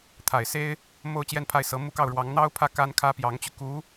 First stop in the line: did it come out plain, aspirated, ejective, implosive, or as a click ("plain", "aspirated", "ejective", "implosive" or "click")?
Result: aspirated